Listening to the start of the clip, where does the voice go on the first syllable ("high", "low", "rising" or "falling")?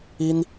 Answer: high